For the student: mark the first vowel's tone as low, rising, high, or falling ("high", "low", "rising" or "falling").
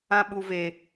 high